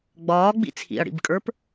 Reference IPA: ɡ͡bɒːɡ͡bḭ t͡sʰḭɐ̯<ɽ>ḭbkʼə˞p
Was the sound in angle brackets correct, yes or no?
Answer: yes